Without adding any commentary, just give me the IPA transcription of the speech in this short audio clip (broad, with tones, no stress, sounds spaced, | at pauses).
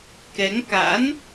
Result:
k ɛ˨˦ ŋ k a̰˧˥ n